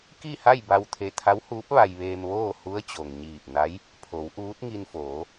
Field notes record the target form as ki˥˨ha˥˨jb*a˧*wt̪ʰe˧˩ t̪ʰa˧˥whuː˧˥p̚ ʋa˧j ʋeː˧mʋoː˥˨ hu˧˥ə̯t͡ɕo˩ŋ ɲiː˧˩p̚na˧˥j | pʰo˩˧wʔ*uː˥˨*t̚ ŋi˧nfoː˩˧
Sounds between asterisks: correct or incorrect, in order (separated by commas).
correct, incorrect